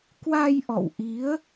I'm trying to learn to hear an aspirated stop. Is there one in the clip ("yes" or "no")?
no